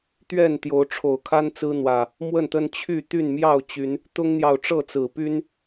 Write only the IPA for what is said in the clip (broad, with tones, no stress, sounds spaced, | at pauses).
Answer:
t̪ ɥ ɛ˥˨ n t̪ j o˨˦ ʊ̯ ʈ͡ʂʰ o˨˩ ʊ̯ kʰ a˦ n t͡s ɹ̩˦ n̪ w ä˨˩ | m w ə˥˨ n t̪ ə˦ n t͡ɕʰ y˥˨ t̪ y˥˨ n m j ɑ˥˨ ʊ̯ t͡ɕ y˨˦ n | t̪ ʊ˦ ŋ n̪ j ɑ˨ ʊ̯ ʈ͡ʂ ɤ˥˨ t͡s ɹ̩˨˩ p y˦ n